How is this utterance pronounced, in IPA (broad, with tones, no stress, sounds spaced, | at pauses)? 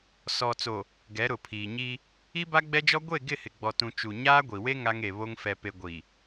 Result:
s ɔ˨ t͡s o˨ | ɡ ɛ˨˦ ɾ ʊ˨ pʰ iː˨ ɲ i˦ | i˦ b a˦ ɡ͡b ɛ˦ d͡ʒ ɔ˦ ɡʷ e˦˨ ɡ ɪ˦˨ h ɪ˨ ɡ͡b ɔ˨ t ũ˨ t͡ʃ u˨ ɲ aː˦ ɡʷ i˨ w e˦ ŋ a˦ ŋ e˨ β o˦ ŋ f ɛ˨ p e˨ ɡʷ i˨